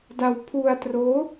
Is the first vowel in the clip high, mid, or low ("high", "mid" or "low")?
low